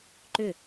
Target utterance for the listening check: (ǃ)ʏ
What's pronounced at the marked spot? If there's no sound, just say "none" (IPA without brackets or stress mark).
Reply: ǃ